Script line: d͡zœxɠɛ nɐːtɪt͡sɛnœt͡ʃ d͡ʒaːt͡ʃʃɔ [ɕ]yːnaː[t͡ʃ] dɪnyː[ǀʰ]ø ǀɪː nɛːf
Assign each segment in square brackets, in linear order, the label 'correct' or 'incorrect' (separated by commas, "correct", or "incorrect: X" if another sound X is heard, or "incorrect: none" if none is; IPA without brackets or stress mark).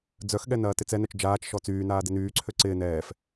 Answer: incorrect: t͡s, incorrect: none, correct